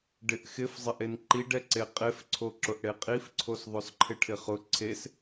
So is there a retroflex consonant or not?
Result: yes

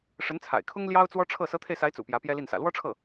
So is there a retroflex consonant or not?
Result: yes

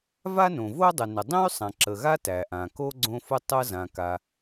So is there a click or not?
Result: yes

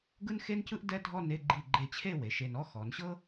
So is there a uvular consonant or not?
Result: no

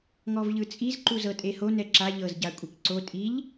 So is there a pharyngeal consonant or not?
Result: no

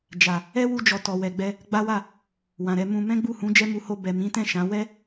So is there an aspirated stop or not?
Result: no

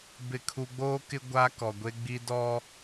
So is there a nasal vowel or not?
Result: no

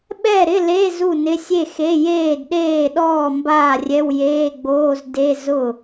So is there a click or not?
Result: no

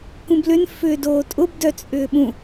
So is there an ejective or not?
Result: yes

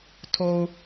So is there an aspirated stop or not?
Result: yes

